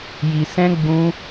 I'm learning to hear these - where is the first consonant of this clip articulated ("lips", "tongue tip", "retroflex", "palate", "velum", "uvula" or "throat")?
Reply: palate